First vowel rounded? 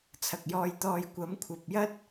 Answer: no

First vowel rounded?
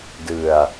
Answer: no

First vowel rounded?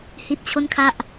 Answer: no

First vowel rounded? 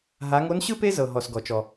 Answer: no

